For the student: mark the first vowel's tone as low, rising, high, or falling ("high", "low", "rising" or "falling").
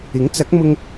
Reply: rising